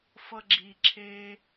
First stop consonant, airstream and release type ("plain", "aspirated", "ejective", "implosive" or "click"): click